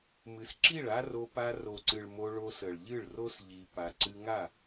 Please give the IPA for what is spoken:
m ɨ˨ s ǁ i˦˨ ɭ a˦ r o˧ p a˧ r o˨ ǀ ɨ˨ ɭ m o˧ ɭ o˧ s ə˨ ɭ ʎ ɨ˦˨ ɭ r o˦ s ʎ i˧ p a˧ ǀ ɨ˧ ŋ a˦˨

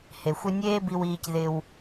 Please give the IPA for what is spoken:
h e˩ xʷ ɪ˦ nʲ eː˦ b i˨ w iː˨ c ð ɪ˨ w

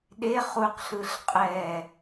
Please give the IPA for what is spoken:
ɗ e χ u q ɬ ɯ ɬ qʼ ɛ

